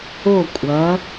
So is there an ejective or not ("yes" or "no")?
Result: yes